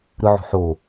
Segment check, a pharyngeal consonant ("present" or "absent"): present